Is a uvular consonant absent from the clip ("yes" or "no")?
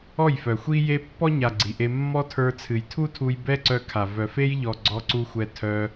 yes